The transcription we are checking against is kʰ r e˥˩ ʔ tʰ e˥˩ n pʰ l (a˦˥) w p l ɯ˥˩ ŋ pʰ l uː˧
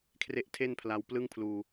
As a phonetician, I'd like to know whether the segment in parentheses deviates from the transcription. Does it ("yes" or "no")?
yes